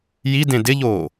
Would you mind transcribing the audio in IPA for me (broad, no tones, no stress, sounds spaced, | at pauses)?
j i d ẽ d ɪ ʎ oː